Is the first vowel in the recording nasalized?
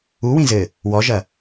no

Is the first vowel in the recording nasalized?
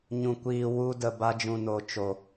yes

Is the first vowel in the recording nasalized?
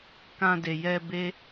yes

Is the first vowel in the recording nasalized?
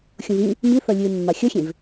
yes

